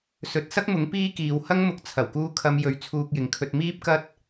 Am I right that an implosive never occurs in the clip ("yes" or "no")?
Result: yes